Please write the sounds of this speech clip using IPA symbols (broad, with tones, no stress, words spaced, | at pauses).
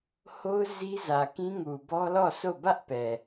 ho˦ʊ̯ zi˦zä˨kĩ˦ŋu˨ bɔ˦lɔ˦˨so˦˨ bä˦ʔpɛ˨